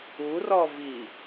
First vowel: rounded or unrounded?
rounded